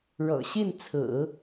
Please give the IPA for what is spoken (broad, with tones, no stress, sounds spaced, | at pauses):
ɻ ɤ̰˨˩ ɕ i˥˩ n t͡sʰ ɹ̩˨˩˦